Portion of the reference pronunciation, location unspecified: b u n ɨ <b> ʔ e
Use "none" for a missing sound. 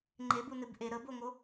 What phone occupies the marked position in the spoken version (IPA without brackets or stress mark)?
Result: b